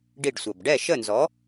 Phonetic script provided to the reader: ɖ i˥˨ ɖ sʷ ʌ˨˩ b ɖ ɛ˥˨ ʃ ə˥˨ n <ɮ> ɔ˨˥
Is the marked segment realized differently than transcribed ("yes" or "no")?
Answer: yes